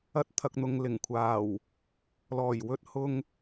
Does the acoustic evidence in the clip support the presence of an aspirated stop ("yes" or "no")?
yes